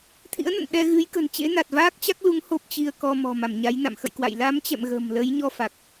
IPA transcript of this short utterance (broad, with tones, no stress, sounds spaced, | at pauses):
t̪ʰ ḭ˧˥ ə̯ n ə̰˧˨ n ɗ ɛ˧ ɣ ɨ˨˦ j k ə̤˨˩ n t͡ɕ ḛ˧˥ n a˨˩ t̚ v aː˦˥ k̚ t͡ɕ a˦˥ k̚ l u˨˦ ŋ h o˦˥ p̚ t͡ɕ i˧ ə̯ k ɔ˧ m ɔ̤˨˩ m a˧˩ m ɲ a˨˦ j n a̰˧˨ m x ə̰˧˨ j k w a̰˧˨ j l a˨˦ m t͡ɕ ɛ̰˧˨ m ɣ ə̤˨˩ m l ə˨˦ j ɲ ɔ˧ f a˨˩ k̚